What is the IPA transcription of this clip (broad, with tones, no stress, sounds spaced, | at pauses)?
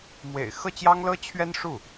m w ḛ˨˩ ɪ̯ x ɤ˥˩ t͡ɕ j ɑ˥ ŋ l ɤ˥ t͡ɕʰ ɥ ɛ˥ n ʂ u˥˩